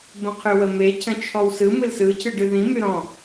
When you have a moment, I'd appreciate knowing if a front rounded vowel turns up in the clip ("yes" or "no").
yes